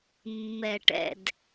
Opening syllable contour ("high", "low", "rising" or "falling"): low